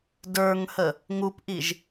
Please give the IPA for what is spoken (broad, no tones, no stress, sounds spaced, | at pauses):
d ə˞ ŋ h ə | ŋ u p ʔ i ʒ